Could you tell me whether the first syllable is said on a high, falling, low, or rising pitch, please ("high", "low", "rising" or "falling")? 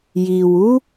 low